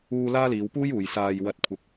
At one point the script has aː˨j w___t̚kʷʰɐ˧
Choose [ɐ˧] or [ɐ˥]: ɐ˧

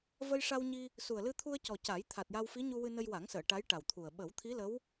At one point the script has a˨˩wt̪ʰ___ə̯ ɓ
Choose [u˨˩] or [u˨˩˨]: u˨˩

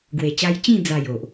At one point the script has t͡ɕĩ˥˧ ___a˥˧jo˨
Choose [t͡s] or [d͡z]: d͡z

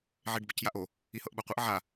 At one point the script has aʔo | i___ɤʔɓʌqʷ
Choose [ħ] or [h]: h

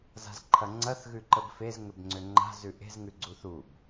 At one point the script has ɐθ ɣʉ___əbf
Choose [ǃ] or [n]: ǃ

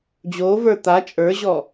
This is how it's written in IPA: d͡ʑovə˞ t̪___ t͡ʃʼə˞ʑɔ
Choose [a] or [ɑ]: a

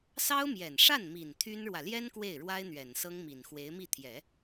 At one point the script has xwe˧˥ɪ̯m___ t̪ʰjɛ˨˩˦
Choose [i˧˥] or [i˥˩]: i˥˩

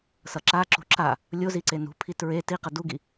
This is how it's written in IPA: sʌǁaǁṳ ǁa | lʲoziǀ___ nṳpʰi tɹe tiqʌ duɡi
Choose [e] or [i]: e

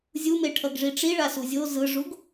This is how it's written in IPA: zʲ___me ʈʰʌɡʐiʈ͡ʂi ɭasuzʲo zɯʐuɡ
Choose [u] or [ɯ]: u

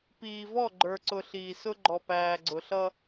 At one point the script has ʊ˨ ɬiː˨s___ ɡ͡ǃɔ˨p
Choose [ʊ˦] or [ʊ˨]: ʊ˦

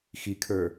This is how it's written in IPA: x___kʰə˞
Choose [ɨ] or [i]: i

